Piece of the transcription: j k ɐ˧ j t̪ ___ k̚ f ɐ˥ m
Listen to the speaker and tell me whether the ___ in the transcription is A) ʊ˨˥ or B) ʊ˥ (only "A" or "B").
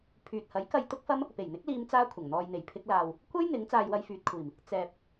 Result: B